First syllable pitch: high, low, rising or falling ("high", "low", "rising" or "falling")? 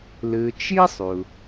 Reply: low